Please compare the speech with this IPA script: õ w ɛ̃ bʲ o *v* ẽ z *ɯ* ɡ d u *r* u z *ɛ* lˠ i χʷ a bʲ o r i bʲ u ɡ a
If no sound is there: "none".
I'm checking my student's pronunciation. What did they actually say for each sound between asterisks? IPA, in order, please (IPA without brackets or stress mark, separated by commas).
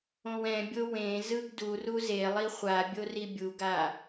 w, ɯ, r, e